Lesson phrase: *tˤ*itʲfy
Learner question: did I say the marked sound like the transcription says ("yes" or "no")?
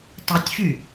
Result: yes